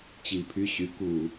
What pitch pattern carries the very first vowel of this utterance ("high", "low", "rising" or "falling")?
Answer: low